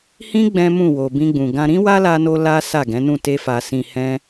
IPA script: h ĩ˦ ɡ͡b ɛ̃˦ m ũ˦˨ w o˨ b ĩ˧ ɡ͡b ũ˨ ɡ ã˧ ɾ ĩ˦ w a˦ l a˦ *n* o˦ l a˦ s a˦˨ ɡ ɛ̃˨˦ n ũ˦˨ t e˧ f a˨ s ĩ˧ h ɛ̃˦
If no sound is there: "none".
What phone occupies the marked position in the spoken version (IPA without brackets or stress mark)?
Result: n